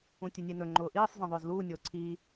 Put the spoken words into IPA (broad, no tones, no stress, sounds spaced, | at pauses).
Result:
ũ tʲ e nʲ e n ɵ ŋ͡ǃ ʊː ʔ iː sˤ z ĩ ðˤ ʊː z l uː nʲ ʊː ǀʰ iː